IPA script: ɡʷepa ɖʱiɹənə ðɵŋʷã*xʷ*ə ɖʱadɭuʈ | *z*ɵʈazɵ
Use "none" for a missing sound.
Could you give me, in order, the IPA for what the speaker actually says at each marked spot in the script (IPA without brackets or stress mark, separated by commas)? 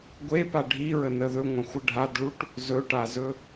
xʷ, z